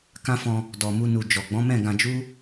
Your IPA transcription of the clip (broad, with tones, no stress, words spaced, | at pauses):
kã˦fɔ̃˧ | dɔ˨mu˧nu˨ d͡ʒɔ˨ɡ͡bɔ̃˨˦mɛ̃˦˨ ɡã˧d͡ʒu˦